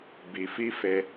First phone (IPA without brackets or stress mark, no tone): b